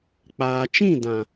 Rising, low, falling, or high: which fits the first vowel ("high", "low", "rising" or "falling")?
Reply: low